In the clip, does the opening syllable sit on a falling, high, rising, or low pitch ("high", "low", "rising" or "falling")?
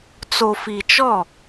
low